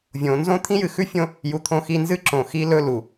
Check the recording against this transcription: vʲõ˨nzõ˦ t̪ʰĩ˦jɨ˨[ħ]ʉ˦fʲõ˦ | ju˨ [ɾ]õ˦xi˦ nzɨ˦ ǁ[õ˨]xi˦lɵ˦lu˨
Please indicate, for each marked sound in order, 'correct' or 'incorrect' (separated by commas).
incorrect, incorrect, correct